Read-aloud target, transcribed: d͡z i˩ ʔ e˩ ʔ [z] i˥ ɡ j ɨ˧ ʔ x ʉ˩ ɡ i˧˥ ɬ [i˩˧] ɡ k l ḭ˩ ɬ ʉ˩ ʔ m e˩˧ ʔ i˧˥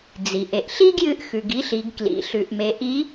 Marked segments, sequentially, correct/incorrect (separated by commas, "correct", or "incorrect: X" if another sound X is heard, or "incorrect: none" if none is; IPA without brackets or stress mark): incorrect: ɬ, correct